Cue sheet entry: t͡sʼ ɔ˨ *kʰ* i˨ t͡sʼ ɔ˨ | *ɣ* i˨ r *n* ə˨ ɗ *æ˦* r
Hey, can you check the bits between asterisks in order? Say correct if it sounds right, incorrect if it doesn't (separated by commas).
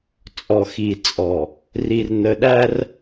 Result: incorrect, incorrect, correct, correct